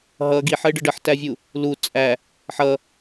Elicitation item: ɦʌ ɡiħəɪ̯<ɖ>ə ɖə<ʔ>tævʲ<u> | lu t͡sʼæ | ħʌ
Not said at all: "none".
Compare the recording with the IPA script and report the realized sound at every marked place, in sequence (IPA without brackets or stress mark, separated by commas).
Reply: ɖ, ħ, u